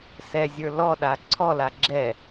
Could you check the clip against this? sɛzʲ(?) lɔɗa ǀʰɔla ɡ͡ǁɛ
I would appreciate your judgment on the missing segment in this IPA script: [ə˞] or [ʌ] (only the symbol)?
ə˞